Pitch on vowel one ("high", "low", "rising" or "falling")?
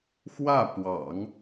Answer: falling